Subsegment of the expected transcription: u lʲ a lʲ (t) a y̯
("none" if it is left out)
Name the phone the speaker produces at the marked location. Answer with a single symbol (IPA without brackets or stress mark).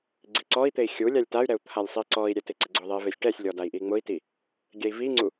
t